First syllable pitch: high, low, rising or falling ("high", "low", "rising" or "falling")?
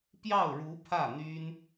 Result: falling